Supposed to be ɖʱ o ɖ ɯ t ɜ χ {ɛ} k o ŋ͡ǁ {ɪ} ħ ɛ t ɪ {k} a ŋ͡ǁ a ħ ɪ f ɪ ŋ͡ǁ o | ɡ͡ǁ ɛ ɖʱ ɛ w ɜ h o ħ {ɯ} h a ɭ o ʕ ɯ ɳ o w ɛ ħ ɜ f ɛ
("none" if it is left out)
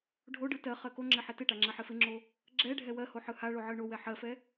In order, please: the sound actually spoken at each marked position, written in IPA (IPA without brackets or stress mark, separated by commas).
ɜ, ɪ, ʈ, ɯ